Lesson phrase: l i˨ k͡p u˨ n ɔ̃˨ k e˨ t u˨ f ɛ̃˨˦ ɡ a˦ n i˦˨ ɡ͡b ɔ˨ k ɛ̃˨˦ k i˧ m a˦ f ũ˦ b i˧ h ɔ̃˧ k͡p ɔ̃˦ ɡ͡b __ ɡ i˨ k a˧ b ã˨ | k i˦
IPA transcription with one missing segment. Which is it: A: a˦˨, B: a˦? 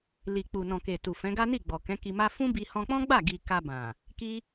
A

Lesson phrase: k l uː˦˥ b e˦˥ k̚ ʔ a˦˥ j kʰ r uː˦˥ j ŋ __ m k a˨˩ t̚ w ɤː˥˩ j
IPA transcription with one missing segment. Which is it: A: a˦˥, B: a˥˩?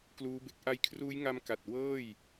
A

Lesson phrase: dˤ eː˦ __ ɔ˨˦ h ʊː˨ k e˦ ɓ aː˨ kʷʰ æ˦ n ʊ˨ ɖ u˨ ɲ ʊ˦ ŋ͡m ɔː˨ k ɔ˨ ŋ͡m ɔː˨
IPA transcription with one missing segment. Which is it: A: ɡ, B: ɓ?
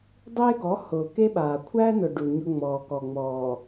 A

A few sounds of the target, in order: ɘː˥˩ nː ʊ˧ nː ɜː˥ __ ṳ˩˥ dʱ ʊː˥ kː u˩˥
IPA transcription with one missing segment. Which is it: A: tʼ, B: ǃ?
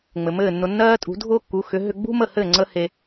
A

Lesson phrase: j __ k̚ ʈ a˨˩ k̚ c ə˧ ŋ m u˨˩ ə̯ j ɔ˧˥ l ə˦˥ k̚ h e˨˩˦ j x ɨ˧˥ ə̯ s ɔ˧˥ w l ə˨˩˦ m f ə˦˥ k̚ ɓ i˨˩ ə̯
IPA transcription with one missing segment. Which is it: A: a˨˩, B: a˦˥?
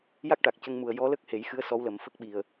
B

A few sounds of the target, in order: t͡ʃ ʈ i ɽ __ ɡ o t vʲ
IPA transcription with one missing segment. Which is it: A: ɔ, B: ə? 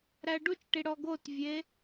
A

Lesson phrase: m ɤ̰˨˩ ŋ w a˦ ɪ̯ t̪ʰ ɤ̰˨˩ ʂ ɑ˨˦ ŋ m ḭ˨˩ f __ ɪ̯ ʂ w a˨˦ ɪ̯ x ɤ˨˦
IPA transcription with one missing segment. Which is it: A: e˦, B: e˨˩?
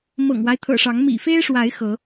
A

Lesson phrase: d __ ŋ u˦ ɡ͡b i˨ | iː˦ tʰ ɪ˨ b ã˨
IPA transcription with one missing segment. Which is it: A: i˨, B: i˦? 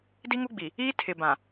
B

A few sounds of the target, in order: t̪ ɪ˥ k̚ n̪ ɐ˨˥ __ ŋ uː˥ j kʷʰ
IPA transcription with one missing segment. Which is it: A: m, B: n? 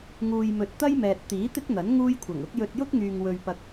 B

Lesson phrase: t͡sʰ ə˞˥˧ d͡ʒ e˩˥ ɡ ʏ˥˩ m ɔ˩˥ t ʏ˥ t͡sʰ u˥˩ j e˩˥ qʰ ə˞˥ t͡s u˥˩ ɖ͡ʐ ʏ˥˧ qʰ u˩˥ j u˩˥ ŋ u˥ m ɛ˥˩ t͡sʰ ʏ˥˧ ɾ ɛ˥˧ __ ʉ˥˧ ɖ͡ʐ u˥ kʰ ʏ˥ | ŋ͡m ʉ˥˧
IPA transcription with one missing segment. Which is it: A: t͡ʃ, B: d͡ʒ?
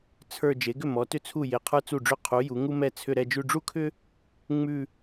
B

